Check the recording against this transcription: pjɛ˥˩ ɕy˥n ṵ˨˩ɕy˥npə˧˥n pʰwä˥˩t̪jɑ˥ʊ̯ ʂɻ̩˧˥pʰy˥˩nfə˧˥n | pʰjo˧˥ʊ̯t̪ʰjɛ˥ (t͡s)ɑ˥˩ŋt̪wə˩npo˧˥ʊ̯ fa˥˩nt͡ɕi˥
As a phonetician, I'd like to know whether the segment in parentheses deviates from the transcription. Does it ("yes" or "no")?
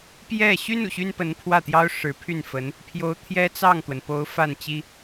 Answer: no